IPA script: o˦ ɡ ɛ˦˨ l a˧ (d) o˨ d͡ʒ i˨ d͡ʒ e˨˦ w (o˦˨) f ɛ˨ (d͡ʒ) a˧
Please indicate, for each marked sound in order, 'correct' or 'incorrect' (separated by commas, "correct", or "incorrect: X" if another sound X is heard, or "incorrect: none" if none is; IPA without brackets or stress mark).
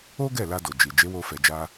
correct, incorrect: o˧, correct